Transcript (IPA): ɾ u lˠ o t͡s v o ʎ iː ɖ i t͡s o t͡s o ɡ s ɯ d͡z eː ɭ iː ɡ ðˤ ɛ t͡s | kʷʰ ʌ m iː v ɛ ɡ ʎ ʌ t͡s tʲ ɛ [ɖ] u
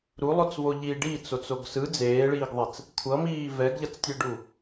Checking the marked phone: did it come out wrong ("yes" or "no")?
no